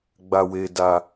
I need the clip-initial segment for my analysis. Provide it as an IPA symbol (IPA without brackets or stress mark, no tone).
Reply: ɡ͡b